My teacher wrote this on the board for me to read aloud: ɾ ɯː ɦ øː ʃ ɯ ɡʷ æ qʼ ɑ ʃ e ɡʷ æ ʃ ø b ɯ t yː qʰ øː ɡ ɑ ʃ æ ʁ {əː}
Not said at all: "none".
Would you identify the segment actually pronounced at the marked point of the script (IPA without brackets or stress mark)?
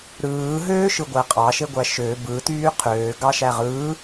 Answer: ɯː